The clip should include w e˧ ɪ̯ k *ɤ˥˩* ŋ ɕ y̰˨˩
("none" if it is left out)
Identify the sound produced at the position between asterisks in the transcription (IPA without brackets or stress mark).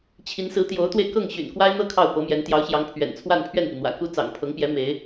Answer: ɤ˥˩